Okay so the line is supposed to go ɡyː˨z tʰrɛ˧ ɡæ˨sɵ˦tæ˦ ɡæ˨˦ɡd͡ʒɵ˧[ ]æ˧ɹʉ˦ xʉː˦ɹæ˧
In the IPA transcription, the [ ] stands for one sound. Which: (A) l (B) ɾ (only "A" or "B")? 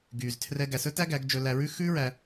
A